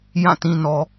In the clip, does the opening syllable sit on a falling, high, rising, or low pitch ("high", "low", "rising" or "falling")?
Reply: falling